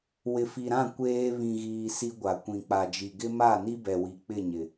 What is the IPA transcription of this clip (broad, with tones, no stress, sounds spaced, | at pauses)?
w ɪ˨ f i˨ ɾ ã˦˨ kʷ eː˦ β ĩ˨ ɣ iː˨ s i˦ ɡʷ a˨ kʷ ĩ˨ k͡p a˨ d͡ʒ i˨ ɡ ɪ˦ m a˦˨ n i˦ b ɛ˨ w i˨ k͡p ɪ˦˨ ɲ ɪ˨